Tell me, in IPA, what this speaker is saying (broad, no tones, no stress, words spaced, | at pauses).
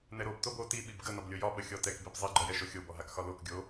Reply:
nɛɾob tobo ti ɓibɡə nɒblʲojɒ ɓəxʲɔtɛk bibzˤi ɡ͡ǃɔjɛʃoxʲob ɔɦakxɒlok ɡʲo